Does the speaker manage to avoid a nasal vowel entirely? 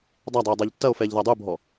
yes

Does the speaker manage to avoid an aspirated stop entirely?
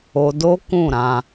yes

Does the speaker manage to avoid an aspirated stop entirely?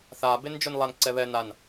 yes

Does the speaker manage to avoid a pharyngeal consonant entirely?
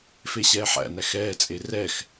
no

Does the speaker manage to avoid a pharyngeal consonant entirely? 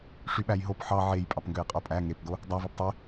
no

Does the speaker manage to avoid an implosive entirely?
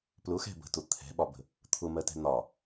no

